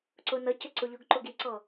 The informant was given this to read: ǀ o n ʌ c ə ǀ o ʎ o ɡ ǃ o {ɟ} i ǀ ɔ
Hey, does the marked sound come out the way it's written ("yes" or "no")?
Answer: no